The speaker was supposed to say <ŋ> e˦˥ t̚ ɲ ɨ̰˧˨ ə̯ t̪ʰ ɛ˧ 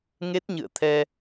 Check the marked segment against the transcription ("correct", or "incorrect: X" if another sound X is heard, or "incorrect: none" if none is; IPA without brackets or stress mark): correct